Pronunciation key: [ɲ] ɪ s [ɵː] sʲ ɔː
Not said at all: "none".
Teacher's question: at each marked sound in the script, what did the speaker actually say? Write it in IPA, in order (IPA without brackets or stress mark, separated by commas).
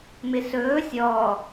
m, ɵː